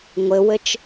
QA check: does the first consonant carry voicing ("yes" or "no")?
yes